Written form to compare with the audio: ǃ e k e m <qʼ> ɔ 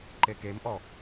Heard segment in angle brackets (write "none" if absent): ʔ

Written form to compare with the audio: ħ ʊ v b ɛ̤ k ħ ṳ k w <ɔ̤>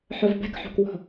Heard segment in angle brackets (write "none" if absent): ɔ̤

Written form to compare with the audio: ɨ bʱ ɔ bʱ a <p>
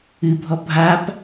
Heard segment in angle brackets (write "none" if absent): p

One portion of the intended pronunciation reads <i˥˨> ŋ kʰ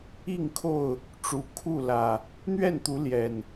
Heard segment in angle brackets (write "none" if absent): i˥˨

